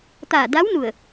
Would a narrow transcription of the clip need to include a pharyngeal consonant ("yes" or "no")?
no